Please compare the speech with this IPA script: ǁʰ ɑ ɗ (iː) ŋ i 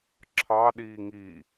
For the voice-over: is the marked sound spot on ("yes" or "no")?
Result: yes